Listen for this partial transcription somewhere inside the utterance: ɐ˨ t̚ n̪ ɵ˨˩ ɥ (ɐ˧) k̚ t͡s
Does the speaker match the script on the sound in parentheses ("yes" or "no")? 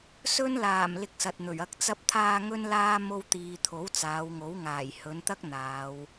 yes